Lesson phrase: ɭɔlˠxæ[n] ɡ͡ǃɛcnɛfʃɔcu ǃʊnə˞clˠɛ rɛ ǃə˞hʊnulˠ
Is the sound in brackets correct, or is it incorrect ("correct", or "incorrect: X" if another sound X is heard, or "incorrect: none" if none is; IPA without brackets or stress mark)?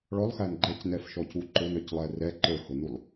correct